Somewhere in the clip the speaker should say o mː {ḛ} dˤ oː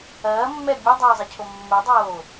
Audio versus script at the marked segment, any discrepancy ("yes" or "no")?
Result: yes